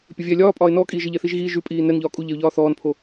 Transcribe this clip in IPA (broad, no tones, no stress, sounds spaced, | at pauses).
pʲ ə vʲ ɛː lʲ ɒː pʼ ɒː ɪ̯ n ɔː kʼ iː ʒ ə ʎ ɛ θ i ʒ ɣ iː ʒ ʉ pʼ iː n ɛ n ʎ ɒː kʼ u ʎ ɛ ʊ̯ ʎ ɒː θ ɔː n pʰ o